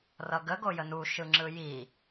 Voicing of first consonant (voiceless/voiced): voiced